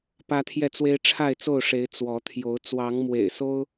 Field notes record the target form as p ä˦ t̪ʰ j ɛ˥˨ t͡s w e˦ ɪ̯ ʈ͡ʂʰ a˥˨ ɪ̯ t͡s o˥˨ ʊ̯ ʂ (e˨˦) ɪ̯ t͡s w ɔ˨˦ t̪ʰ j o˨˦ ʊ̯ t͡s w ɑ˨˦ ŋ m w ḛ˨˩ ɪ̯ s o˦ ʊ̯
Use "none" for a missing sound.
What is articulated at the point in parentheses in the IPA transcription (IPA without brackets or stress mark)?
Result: e˨˦